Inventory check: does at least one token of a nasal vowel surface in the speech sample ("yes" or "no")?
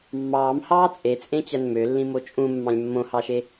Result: yes